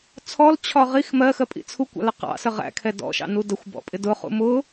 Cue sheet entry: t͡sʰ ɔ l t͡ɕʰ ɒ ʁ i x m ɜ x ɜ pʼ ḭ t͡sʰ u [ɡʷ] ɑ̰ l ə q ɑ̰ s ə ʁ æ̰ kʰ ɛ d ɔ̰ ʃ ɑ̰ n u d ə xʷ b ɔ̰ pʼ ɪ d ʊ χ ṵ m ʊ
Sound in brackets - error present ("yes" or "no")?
yes